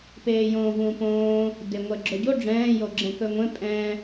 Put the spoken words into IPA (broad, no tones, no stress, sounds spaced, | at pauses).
p eː j õː v ũː p õː | d e ŋʷ ɛ ɡ͡ǁ ɵ ɟ o ɖ͡ʐ ɛ̃ː j o ɡ͡ǁ ɛ̃ k ɵ ŋʷ ẽ pʼ ɛ̃